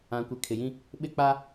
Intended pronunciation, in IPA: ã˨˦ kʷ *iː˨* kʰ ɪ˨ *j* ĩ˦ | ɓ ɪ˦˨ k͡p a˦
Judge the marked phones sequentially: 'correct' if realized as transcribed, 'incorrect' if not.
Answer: incorrect: i˨, correct

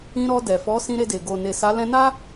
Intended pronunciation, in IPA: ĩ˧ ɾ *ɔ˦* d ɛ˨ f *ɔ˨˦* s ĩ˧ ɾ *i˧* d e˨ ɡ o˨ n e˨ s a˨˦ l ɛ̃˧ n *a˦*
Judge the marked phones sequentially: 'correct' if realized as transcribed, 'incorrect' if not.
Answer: incorrect: ɔ˧, correct, incorrect: e˧, correct

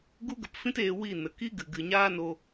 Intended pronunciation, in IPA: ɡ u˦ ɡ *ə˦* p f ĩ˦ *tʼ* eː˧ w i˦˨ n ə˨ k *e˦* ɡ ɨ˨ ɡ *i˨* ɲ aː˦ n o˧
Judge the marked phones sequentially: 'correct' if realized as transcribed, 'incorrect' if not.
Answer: incorrect: ə˧, incorrect: t, incorrect: i˦, incorrect: ɨ˨

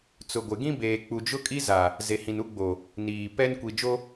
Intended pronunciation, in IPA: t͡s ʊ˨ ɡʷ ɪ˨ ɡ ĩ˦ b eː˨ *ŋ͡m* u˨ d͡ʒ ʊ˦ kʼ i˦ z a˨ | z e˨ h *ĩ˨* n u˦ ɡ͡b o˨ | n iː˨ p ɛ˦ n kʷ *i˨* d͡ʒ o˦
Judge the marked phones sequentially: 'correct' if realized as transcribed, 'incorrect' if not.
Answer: incorrect: k͡p, correct, correct

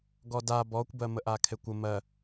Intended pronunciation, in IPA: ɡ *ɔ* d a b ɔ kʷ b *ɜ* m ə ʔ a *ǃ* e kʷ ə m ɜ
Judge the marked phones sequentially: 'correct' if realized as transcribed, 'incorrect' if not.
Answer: correct, correct, incorrect: kʰ

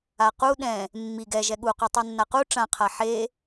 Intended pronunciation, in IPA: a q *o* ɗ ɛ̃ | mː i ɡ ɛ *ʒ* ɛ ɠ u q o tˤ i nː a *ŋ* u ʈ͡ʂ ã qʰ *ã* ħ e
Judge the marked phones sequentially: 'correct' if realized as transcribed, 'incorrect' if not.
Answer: incorrect: u, correct, incorrect: q, incorrect: a

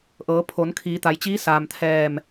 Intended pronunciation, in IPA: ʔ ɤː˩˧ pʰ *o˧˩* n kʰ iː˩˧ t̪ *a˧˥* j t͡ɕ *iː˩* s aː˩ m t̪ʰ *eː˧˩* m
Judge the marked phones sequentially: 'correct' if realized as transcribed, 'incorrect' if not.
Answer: incorrect: o˩˧, incorrect: a˩˧, incorrect: iː˧˥, incorrect: ɛː˧˩

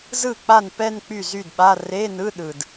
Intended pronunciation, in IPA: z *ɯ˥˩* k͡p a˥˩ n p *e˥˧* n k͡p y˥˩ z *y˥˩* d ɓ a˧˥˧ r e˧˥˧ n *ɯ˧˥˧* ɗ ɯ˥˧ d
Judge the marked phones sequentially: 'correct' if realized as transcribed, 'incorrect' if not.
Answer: correct, incorrect: ɛ˥˧, correct, correct

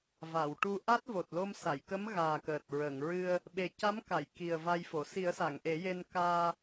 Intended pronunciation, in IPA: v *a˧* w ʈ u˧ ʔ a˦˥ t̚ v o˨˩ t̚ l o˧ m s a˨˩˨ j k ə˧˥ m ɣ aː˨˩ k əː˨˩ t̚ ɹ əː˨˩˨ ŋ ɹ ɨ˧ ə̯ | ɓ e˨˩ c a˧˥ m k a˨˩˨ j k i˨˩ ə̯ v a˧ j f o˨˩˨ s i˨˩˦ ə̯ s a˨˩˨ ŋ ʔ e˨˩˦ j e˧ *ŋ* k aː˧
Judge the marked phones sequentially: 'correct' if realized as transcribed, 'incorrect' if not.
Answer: incorrect: a˨˩˨, incorrect: n

